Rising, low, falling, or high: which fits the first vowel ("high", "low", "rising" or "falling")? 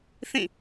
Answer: falling